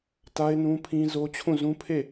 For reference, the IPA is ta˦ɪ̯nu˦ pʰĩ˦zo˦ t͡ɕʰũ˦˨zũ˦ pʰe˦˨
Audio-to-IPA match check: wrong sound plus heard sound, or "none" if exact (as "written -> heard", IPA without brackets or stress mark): u˦ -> ũ˦